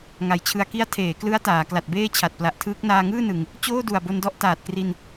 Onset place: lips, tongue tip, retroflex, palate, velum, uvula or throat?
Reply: velum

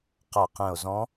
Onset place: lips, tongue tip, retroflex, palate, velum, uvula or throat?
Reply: uvula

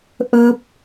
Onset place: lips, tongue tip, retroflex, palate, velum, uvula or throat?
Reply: throat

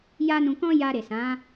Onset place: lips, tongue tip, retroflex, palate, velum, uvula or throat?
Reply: palate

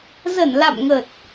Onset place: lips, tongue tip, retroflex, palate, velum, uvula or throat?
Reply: tongue tip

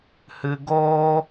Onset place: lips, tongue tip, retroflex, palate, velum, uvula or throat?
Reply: throat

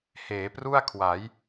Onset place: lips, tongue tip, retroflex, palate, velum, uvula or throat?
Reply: throat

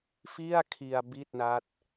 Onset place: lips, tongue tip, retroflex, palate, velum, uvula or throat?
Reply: lips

